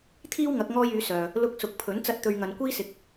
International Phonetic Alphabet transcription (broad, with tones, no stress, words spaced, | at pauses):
t̪ʰiː˥wŋɐ˨˥k̚ ŋɔː˥jyː˨˥sœː˨ | lʊ˧k̚sʊ˨k̚pʰɵ˨˥n t͡sɐ˧t̚t̪ɵ˨ɥ ŋɐ˨nkʷiː˥sɪ˨˥k̚